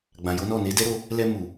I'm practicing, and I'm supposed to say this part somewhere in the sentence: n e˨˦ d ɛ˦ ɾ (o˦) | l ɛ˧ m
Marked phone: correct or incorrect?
incorrect: o˧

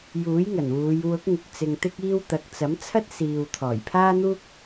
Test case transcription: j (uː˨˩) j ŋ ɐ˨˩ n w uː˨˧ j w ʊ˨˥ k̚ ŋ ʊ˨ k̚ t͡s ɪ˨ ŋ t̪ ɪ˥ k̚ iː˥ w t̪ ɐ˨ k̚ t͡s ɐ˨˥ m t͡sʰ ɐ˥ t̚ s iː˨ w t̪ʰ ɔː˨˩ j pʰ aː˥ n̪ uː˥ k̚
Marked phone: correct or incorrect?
incorrect: uː˨˥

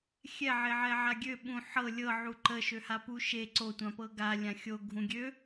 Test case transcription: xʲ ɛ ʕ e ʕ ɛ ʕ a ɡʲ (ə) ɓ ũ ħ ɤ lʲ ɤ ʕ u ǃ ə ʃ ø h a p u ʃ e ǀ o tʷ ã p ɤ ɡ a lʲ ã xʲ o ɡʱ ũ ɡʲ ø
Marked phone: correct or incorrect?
incorrect: ø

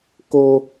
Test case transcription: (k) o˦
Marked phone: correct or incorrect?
correct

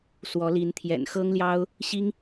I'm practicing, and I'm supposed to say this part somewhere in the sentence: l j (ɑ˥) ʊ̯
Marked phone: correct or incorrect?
correct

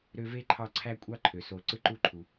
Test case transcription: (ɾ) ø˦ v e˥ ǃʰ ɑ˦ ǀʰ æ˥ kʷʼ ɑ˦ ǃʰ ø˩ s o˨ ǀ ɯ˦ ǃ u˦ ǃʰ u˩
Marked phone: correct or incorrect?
correct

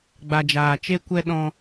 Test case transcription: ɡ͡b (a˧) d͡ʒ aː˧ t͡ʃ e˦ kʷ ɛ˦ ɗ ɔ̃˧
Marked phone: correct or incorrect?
correct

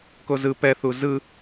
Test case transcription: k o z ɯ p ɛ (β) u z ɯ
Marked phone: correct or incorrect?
incorrect: θ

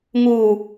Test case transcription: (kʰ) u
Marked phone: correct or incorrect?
incorrect: ŋ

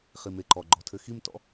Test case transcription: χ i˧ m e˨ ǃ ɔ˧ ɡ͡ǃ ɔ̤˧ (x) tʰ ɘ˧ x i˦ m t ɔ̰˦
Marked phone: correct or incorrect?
incorrect: none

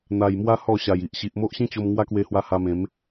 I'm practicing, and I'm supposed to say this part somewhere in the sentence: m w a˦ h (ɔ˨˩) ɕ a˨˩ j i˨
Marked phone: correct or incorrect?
incorrect: ɔ˥˧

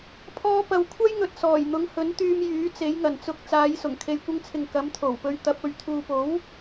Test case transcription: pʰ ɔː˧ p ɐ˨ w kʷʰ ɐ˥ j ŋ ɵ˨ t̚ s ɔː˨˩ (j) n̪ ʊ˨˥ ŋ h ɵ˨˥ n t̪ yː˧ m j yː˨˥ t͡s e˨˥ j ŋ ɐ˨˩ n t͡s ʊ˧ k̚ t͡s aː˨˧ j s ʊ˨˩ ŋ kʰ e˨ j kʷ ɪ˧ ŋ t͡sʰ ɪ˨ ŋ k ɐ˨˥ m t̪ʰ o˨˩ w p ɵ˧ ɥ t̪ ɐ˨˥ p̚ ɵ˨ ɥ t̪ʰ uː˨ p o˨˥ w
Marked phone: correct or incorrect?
correct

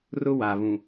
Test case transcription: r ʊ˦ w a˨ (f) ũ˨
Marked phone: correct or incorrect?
incorrect: β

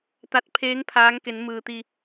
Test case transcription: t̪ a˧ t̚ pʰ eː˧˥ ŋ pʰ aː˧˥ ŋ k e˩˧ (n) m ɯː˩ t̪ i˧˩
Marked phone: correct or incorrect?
correct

